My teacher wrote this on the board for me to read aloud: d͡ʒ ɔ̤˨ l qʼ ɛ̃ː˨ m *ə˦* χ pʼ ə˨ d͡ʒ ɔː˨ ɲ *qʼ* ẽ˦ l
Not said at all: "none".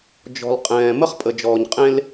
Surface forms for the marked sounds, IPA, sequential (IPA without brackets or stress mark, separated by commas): ə˦, qʼ